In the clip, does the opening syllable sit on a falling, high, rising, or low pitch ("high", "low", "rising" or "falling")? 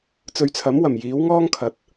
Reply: low